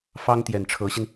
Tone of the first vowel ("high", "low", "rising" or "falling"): high